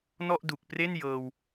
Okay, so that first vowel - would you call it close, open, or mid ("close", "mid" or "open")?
mid